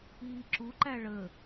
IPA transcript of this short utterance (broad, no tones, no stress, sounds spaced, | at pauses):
iː ǁ u ǃ æ ɭ ə